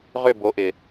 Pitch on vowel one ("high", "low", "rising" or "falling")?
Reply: falling